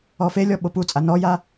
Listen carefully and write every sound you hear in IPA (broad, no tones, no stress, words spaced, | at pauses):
ɔfelʲɔ ɓoput͡sʼa nɔja